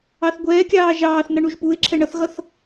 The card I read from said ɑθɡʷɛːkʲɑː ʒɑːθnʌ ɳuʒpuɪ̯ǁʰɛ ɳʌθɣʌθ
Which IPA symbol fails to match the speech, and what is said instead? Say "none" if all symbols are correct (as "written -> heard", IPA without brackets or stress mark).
none